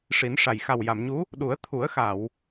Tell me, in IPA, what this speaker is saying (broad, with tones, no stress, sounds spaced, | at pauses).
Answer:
ʂ i˨˩˦ n ʂ a˨˩ j x a˨˩ w j a˨˩˨ m ɲ u˧˥ | ɗ u˨˩˦ ə̯ t̪ʰ u˨˩˦ ə̯ x a˨˩˨ w